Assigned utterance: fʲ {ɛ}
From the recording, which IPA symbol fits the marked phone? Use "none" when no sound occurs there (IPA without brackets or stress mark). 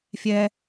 ɛ